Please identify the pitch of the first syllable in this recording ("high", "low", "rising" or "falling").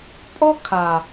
high